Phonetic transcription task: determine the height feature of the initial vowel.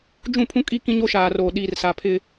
high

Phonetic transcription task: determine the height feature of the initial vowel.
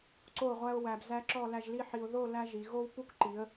mid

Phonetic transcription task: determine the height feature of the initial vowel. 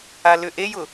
low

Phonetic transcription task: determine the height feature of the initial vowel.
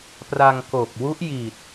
low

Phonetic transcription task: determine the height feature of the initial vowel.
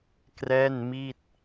mid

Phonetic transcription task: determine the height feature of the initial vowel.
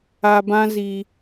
low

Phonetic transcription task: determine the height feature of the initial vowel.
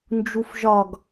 high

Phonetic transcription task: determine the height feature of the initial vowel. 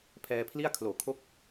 mid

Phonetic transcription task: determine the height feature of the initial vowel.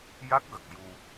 low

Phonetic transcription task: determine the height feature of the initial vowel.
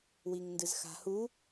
high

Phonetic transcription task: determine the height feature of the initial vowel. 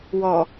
mid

